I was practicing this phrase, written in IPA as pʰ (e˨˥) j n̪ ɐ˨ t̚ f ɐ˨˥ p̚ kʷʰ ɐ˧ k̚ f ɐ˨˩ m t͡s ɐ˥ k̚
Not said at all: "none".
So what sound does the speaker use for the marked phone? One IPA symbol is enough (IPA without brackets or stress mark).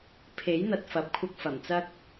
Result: e˨˥